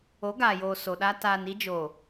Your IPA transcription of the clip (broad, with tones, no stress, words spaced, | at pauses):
o˨˦ɡaː˨joː˨ so˨ɗa˦ taː˨ni˦d͡ʒo˨